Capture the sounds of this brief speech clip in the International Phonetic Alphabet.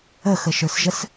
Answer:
ə x ə ʃ ə˞ s ʒ ə s

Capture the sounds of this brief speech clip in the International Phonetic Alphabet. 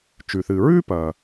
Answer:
t͡ʃ ʉ˩ θ ɨː˩ ɹ ʉː˥ p ɐ˩

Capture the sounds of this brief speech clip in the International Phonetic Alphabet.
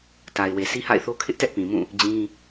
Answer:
t a˨ ɪ̯ w e˨ s i˦ h a̰˦˨ ɪ̯ θ o˦ kʰ ɪ˦ ʔ t ɛ˦ ʔ p ĩ˨ m ũ˦˨ | d͡ʑ ĩ˦

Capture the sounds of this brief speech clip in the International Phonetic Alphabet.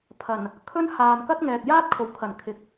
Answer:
pʰ ɐ˨˩ n | kʰ ɵ˥ n h aː˨ n k ɐ˥ t̚ ŋ ɛː˨ k̚ j aː˥ t̚ kʰ o˨˩ w kʰ ɐ˨˩ n kʰ ɪ˨ k̚

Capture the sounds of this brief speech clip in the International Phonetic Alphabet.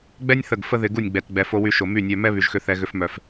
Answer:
ɡ͡b ɛ˦ nʲ θ ə˦˨ ɡ f ə˦ ð ɪ˧ ɡ u˦˨ nʲ ɡ͡b ɛ˨ t ɡ͡b ɛ˨ f o˧ w y˧ ʃ o˨ m y˦˨ nʲ œ˧ m ɛ˦ β y˨ ʒ x ʏ˧ θ ɛ˧ ɣ ʏ˧ f m œ˨ f

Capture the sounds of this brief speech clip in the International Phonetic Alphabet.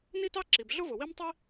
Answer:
n i˥ t ɑ˥ ǁ i˩ b ɮ ʊ˥ v ʊ˩ w i˥ m tˤ i˥

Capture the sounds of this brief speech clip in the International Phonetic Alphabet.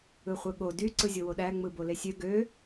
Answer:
ɯ χʷ ɯ ɠ o d y ǀ ɯ zʲ o w o ɗ æ ŋ͡m ɯ b o l e sʲ ø ɡ ø

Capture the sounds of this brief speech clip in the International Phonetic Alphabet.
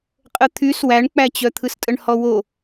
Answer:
qʼ ə t̪ʰ y s w æ ɳ k͡p æ t͡ɕ œ t̪ʰ ɯ s tʼ ə ɳ h ɔ w o

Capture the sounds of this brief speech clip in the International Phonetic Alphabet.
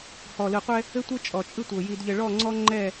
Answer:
h ɔ˨ l ɯ˨ qʷ ɛ˦ | ɘ˦ tʷ ɘ˦ t͡ʃʼ ɔ˨ t͡ʃʼ ɯ˦ tʷ ɤ˨ j i˨ d ʎ ɘ˨ ɭ ɔ˦˨ ŋ͡ǀ ɔ˦ ŋ͡ǃ ɛ˦˨

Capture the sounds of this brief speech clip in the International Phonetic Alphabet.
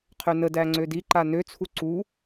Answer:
qʰ ø n ə d æ ŋ͡ǀ ø d i ǃ a n ø t͡sʰ u ǀ u

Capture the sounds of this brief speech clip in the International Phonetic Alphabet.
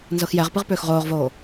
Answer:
n z ɤ x j ɛ ʁ p ɨ ʁ p ʏː x ʁ oː ʁ v oː

